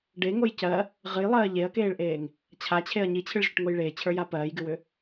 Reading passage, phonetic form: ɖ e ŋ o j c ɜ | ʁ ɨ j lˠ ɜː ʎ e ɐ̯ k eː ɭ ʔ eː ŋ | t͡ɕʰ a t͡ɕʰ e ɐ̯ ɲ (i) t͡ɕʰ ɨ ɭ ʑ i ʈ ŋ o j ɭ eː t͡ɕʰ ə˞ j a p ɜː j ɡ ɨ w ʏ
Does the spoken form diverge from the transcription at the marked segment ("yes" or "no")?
no